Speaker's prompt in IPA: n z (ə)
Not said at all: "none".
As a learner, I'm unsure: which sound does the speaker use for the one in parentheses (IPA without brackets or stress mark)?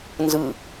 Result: ɯ